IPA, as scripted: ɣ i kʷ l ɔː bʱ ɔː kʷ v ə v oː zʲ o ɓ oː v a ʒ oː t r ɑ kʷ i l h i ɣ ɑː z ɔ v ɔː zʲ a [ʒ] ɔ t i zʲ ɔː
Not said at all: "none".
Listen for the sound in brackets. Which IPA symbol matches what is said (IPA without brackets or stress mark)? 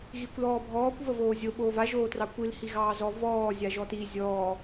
ʒ